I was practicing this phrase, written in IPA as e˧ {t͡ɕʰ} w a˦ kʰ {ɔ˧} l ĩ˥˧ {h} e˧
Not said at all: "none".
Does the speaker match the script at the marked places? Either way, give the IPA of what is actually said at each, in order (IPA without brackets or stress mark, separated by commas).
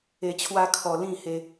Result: t͡ɕʰ, ɔ˧, h